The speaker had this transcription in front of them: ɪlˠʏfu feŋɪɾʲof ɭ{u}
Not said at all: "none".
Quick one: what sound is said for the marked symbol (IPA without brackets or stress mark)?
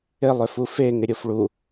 u